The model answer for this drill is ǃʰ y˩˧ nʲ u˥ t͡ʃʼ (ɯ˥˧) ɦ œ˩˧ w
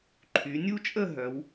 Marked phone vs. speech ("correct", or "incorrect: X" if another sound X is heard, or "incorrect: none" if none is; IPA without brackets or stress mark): incorrect: ə˥˧